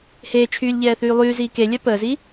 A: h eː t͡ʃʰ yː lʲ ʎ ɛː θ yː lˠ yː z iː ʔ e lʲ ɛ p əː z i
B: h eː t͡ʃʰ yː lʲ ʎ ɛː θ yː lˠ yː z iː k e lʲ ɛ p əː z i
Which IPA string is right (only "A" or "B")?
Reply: B